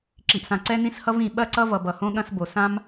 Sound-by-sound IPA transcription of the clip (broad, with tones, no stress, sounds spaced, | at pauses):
ǁ i˨ ʔ s ã˨ ǀ ɛ˦ n ĩ˦ s h ʌ˦ v ĩ˨ ɓ ɐ˦ ǀ ʌ˦ v ʌ˨ b ʌ˨ h õ˦ ɠ ɐ̃˦ s b o˨ s ã˦ m